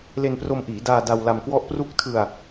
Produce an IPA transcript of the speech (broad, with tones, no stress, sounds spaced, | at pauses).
l e˧ n p r o˧ m ʔ iː˩˦ d aː˧ d a˧ w l a˧ m k w ɔ˥˩ ʔ p r u˦˥ k̚ tʰ ɯ˧ a̯